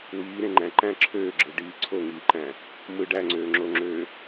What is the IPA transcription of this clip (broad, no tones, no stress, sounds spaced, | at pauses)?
w iː ɾ ẽ ŋ͡ǃ æ̃ ǃ æ̃ ǁʰ øː ɡ͡ǁ ɯ ɖ iː ǀʰ o ŋ iː ǃ æ̃ | m ɯ ɖ æ ŋ͡ǀ øː ŋ͡ǁ o ŋ͡ǁ øː